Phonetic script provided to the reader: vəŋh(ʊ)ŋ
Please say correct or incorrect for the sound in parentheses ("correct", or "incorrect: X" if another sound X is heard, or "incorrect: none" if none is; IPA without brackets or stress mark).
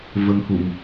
incorrect: u